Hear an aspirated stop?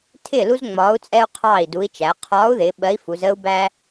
yes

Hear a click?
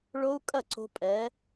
yes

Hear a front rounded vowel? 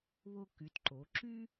yes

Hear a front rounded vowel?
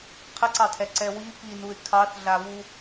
no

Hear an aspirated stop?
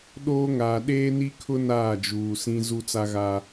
yes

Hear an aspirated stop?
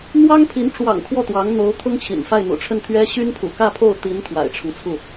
yes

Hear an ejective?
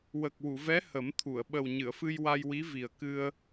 no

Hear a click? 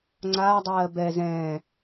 yes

